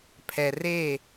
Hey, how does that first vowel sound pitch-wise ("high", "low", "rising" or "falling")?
low